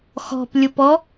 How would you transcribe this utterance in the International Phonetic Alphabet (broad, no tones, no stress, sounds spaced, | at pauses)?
x ɔ̤ p lʲ ʊ p ɔ